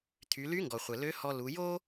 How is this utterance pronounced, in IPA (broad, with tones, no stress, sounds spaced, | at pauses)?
t̪ʰ y˩˧ l y˧˥ ŋ ɡ ɔ˩ χʷ ɘ˩ l ø˧˥ h ɔ˧ l u˩˧ j o˥